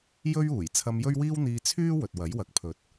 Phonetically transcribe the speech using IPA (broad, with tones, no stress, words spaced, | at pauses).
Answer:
jɵ˥ɥuː˨˩j t͡sʰɐ˧mjɵ˥ɥwiː˥wn̪iː˧ t͡sʰyː˥ wɵ˨t̚ wɐ˨˥jwɐ˨˥k̚ pʰɵ˨˥t̚